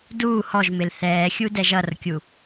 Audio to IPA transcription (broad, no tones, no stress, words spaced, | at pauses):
duː hɔʒmɪl θɛːxʲudɛ ʒʌrkʲu